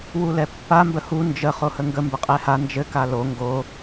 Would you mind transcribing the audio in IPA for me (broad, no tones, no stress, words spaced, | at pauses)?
wulɛpːa mbəhu nd͡ʒə χohəŋɡə mbəqʼɛha nd͡ʒɘ kalo ŋɡo